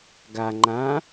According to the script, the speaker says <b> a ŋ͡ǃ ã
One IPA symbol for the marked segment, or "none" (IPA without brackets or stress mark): ɡ